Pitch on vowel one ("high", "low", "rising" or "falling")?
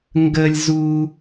high